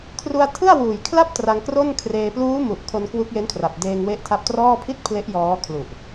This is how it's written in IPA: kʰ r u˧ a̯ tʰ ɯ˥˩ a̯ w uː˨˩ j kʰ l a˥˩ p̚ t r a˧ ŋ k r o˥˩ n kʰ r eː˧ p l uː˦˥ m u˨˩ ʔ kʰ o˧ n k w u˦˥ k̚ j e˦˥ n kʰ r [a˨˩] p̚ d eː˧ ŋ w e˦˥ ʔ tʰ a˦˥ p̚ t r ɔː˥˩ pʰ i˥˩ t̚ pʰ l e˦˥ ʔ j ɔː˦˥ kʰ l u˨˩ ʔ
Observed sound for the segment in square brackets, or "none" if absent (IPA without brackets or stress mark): a˨˩